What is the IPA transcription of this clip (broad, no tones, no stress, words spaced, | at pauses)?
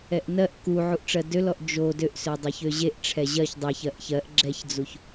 ɛʔnɜʔ ku ʕuʔʈ͡ʂɜdølɔʔ d͡ʒo døʔsø dˤeçøʑeʔʈ͡ʂʰɛ ʑɜç dˤɜç ɜʔçɜʔ ɡ͡ǁɛçd͡zuç